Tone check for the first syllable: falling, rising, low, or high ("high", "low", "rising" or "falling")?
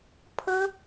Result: high